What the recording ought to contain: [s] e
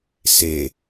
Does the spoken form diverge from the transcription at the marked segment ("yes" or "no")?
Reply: no